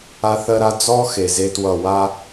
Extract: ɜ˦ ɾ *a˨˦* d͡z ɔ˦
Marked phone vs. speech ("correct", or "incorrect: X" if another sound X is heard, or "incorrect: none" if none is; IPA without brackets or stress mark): incorrect: a˦